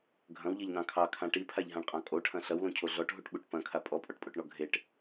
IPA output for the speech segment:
ɡʱ ɐ̃ w ʎ e ʎ n ɑ̃ kʰ ɑ kʰ ã ʈ i pʰ a ʎ ɦ ã ɳ qʼ ɑ̃ kʼ o ʈʰ ɐ̃ ɬ ɐ w l õ cʰ o ɮ ɔ ʈ ɦ u ʈ ɓ u ʈ p ɐ̃ kʰ a pʼ ɔ pʼ ɔ ʈ pʼ o ʈ ɳ ɔ ɡʱ e ʈ

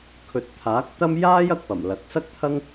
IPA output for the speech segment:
kʰ ɵ˨˥ t̚ t̪ʰ aː˨˥ k̚ t̪ ɐ˥ m j aː˥ j ɐ˧ k̚ p ɐ˨˩ m l ɐ˨˥ k̚ s ɐ˥ k̚ t̪ʰ ɐ˥ ŋ

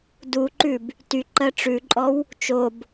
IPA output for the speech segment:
d u ǃ ʉ b | t y ǃ ɜ ʈ͡ʂ ʉ ǃʼ ɔ w | t͡ʃ o b

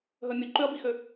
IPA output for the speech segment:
ɦ œ mʲ ɵ ǃ ø ɐ̯ b i x ø

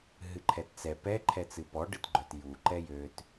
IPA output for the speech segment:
ɦ ɨ ǃʰ ɛ t t͡s ɛ p ɛ ǃʰ ɛ t͡s ɨ p ɔ ɖ ɨ t ɡ͡ǃ œ t j u ǃ ɛ j ø t

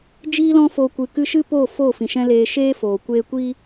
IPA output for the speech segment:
d͡ʒ iː˦ l ɔ̃˦ f o˧ kʷ ɨ˨ k ɨ˧ ʃ ɨ˦ p oː˦˨ f o˦˨ f ĩ˨ ʃ ɛ̃˦ l eː˧ ʃ eː˦ f oː˨ kʷ eː˦ kʷ i˦

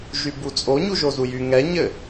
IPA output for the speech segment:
ʒ y b u t͡sʼ o ɲ u ʒ o z u j y ŋ ɛ ɲ ɘ

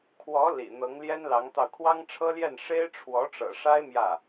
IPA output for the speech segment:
kʰ w ɔ˧˥ l ḭ˨˩ n̪ ɤ˧˥ ŋ l j ɛ˥ n l ɑ˧˥ ŋ t̪ ɑ˧ ʊ̯ kʰ w ɑ˥ ŋ ʈ͡ʂʰ ɤ˥ l j ɛ˥˩ n ʂ e˥ ɪ̯ ʈ͡ʂʰ w ɔ˧˥ ʈ͡ʂ ɤ̰˨˩ ʂ a˥ ɪ̯ m j ä˥˩

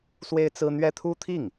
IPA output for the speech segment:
s w e˥ ɪ̯ t͡s ɹ̩˥ n̪ ɥ ɛ˥ t̪ʰ u˥ t̪ʰ i˥˩ ŋ

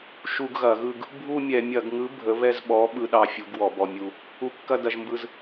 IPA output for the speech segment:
ʃ u˧ ɡ ɣ ɐ˧˩˧ ɣ ɯ˧ ɡ | bʱ u˥˧ mʲ ɛ˧˩˧ mʲ ɐ˧˩˧ ɡ ŋ ɯ˨˥ bʱ ə˨˥ β ɛ˥˧ z ɓ ɔ˨˥ ɓ ɯ˧ ɗ ɑ˧ fʲ u˨˥ ɡ w ɔ˧˩˧ b ɔ˧ mʲ u˧ | u˨˥ kː ɐ˥˧ d ɐ˧ ʒ m b ɯ˧ z

